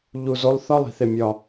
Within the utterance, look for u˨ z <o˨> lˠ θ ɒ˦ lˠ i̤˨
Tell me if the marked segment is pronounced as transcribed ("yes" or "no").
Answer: no